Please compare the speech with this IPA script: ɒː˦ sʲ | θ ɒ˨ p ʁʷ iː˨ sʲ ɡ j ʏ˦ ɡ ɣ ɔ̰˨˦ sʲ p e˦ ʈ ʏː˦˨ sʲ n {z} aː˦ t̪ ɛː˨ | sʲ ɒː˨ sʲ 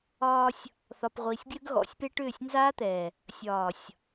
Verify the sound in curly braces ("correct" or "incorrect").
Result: correct